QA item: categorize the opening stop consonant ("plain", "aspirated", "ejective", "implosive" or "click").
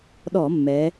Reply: implosive